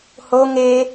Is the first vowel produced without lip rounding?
no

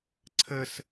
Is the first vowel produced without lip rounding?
yes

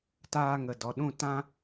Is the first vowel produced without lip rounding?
yes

